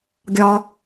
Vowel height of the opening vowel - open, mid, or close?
open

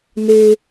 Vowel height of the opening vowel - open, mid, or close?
mid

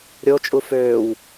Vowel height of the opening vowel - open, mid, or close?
mid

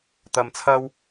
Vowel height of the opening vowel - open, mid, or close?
open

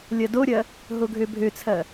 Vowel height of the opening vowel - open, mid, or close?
open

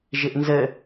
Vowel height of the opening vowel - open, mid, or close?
close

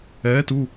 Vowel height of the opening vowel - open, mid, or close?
mid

